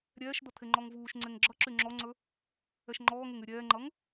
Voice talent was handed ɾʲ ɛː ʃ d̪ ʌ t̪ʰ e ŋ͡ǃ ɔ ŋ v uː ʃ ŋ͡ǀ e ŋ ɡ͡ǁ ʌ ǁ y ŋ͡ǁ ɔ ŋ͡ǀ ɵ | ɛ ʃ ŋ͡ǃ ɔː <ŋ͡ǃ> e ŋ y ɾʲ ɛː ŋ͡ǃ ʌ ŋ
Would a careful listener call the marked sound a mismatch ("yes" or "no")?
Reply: yes